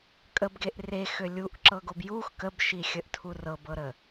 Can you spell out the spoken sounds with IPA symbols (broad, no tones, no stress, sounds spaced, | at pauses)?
kʼ ə b ɡ e ʔ r e x ø lʲ u ʔ ǁ ɤ ɡ o b j u x k ə b ʃ i xʲ ə ʔ tʰ u r ɤ b ɤ ɾ ə